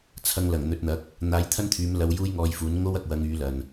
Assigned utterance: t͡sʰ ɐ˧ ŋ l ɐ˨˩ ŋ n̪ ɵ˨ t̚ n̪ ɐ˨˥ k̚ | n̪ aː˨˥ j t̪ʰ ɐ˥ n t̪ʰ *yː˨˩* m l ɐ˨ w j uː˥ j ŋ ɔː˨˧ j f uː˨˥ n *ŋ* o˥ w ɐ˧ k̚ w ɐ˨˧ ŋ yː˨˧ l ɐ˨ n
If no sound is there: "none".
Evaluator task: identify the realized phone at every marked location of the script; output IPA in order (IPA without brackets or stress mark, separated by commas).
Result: yː˨˧, ŋ